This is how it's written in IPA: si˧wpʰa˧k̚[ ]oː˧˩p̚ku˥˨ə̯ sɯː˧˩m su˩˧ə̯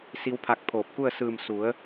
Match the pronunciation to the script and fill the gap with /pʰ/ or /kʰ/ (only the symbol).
pʰ